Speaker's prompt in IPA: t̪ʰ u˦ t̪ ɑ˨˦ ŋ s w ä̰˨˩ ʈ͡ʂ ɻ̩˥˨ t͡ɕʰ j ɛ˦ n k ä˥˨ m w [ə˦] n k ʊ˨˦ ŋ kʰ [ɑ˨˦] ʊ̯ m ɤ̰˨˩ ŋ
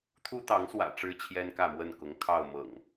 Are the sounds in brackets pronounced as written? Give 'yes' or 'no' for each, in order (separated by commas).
no, no